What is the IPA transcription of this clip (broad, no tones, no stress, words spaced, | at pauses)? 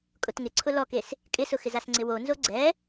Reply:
kʼʊtŋɪ ǀʰʊlɔkes | kʼɪsʊxɪz asŋ͡ǀɪwonzo ɡ͡ǀɛ